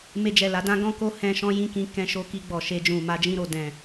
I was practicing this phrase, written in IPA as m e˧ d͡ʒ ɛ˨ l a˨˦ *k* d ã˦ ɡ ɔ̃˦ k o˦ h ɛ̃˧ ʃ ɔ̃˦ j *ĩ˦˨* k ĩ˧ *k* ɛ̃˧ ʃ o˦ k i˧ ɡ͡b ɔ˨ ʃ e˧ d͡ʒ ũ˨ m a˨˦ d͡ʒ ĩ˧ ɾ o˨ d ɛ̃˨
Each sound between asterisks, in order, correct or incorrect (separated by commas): incorrect, correct, correct